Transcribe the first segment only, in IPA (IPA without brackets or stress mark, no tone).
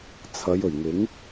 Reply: t͡sʰ